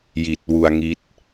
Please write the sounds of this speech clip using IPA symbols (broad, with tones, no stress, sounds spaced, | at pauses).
j i˨˩ t̚ w u˧ a̯ ŋ i˦˥ t̚